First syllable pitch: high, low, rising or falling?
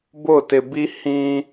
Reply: falling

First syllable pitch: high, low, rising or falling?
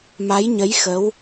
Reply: rising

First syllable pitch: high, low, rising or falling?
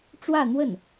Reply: falling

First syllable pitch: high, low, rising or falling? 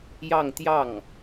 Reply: falling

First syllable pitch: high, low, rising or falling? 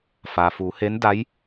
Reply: low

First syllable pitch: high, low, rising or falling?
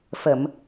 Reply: low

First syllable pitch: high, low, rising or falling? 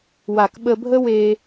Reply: low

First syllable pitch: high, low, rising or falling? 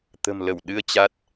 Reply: low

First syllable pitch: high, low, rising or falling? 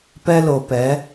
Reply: high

